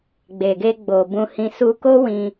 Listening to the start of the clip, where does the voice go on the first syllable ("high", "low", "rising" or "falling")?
low